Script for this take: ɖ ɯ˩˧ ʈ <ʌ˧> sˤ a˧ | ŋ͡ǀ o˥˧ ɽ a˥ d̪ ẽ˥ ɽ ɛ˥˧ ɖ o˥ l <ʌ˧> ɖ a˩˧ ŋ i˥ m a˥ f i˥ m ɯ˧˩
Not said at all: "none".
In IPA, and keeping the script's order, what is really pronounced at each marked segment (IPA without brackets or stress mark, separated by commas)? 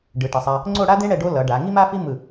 ʌ˩˧, ʌ˩˧